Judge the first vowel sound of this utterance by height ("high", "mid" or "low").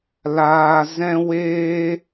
low